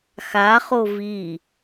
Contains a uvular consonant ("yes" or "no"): yes